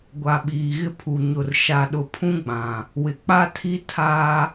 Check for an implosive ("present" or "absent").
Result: present